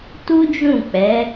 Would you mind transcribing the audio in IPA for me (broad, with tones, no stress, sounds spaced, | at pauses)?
t u˦ d͡ʒ ũ˦˨ k͡p ɛ˨˦